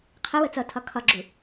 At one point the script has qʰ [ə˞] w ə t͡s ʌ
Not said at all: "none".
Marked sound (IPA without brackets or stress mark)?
ə